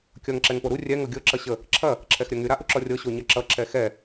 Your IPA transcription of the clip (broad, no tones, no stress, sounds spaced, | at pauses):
kʲ ʌ ŋ ǁ ɛ ŋ p o ɾ u rʲ ɛ ŋ ɤ ɡʲ ɤ ǁ ʌ ɕ ə | ǁʰ ɐ | ǁʰ ɛ x ɾʲ ɐ ŋ y ɾ a ʔ u ǁ ɔ rʲ ɤ ɕ o ɲ ɐ ǁ ʌ ǁ ɛ x ɛ